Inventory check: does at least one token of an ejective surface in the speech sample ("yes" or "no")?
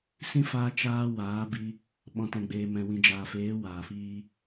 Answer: no